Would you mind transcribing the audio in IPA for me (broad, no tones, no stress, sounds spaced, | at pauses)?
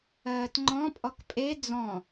ɜː t ŋ͡ǃ ɔ̃ pʼ ɔ k pʼ e d͡z ɔ̃